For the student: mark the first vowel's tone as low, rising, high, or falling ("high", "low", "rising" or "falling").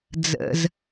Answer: low